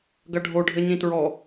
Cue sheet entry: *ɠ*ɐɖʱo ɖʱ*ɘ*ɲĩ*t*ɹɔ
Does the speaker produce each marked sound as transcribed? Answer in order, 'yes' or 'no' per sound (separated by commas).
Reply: no, yes, yes